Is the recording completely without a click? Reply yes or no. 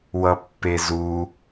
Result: yes